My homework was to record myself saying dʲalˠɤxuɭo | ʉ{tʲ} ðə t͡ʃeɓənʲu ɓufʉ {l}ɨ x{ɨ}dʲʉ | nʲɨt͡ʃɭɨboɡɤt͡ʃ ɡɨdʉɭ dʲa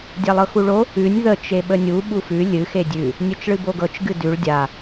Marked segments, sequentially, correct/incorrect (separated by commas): incorrect, incorrect, incorrect